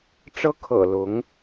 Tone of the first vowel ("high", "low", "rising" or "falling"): high